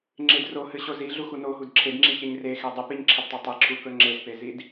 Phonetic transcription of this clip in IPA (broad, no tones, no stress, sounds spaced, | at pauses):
ŋ͡ǁ ɪ d r o h ɨ ɕ o z i ɮ u x u n o ɦ u d ǁʰ e d ŋ͡ǁ i ç e ɲ r e x e dˤ ɨ p i ɲ ǁʰ ɪ d tˤ e tˤ e ǁʰ u k ɵ ŋ͡ǁ e z p e z i d